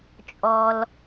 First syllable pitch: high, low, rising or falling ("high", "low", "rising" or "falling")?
low